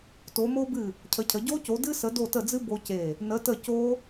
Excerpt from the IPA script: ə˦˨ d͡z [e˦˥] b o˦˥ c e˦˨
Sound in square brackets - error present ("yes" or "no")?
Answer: yes